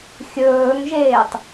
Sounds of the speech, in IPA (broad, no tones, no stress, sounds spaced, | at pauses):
xʲ ɵː ŋ ʒ eː tˤ